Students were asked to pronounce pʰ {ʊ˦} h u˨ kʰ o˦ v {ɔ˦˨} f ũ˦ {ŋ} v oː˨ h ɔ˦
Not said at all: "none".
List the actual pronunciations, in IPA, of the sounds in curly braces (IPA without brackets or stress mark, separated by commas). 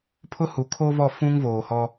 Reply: ʊ˦, ɔ˦˨, ŋ